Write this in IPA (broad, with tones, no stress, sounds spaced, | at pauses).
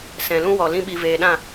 s ɛ̃˨ l ũ˦ w ɔ˨ l ĩ˧ ɓ i˨ v eː˨ ɗ ã˦˨